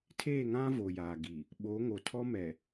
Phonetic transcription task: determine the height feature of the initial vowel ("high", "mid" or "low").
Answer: mid